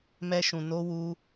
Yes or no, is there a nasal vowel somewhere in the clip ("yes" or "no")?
yes